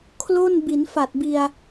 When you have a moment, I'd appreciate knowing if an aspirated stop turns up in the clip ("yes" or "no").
yes